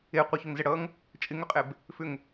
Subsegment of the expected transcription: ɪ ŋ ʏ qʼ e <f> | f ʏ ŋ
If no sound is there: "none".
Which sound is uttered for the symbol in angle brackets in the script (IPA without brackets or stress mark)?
b